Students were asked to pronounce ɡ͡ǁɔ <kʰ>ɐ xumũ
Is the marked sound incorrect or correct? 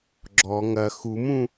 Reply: incorrect: ŋ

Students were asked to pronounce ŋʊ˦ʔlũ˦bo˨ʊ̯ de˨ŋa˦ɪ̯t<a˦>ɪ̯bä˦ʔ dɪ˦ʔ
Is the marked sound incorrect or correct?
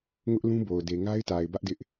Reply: incorrect: a˨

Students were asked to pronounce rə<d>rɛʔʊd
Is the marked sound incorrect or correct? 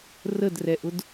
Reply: correct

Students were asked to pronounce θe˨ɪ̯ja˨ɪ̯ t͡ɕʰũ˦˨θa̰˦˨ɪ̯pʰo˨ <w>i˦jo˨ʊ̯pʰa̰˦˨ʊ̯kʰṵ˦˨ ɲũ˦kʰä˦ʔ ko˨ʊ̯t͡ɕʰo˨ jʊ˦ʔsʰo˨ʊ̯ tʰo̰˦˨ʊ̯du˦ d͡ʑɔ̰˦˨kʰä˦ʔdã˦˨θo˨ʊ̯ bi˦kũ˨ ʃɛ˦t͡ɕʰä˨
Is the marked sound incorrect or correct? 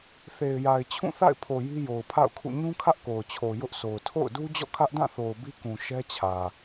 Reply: incorrect: j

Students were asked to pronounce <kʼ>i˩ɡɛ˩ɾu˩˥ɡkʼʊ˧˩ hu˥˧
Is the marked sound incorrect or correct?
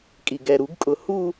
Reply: correct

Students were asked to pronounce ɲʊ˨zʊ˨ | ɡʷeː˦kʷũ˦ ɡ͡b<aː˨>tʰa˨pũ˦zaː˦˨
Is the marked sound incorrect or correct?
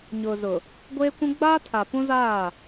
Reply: incorrect: aː˦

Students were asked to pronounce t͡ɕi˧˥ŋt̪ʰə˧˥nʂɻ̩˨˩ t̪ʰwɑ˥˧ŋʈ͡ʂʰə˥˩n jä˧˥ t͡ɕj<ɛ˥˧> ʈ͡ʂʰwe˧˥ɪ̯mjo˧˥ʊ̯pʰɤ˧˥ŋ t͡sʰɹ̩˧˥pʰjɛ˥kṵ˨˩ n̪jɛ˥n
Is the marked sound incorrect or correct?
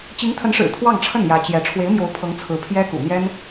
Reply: incorrect: ɛ˧˥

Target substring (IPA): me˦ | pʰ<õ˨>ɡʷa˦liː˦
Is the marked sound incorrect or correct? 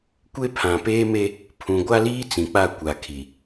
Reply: incorrect: ũ˨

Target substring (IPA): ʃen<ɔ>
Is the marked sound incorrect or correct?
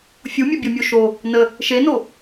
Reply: incorrect: o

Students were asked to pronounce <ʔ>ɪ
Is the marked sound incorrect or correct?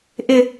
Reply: correct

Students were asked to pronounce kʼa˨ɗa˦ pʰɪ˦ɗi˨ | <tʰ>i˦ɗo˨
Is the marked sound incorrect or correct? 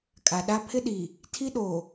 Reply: correct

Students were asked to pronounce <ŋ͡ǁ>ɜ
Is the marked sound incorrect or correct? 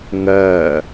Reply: incorrect: ŋ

